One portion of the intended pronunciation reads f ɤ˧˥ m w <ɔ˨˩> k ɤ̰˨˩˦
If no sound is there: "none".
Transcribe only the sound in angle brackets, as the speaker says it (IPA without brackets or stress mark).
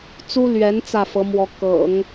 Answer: ɔ˧˥